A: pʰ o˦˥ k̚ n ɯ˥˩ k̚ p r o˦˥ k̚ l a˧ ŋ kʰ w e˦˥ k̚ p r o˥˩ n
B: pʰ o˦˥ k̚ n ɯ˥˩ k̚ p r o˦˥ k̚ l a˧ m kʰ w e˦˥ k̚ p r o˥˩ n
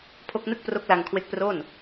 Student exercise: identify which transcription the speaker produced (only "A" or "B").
A